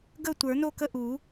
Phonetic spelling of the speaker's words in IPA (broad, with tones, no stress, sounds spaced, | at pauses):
ɡ ə˥˨ tʷ ə˞˨˩˦ n o˥˨ k ə˥˨ ʔ u˨˩˦